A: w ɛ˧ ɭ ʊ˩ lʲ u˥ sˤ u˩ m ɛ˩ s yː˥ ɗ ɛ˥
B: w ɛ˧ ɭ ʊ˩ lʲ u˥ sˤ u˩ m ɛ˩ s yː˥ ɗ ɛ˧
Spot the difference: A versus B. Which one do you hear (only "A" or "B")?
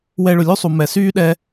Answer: B